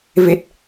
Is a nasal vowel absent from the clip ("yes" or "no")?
yes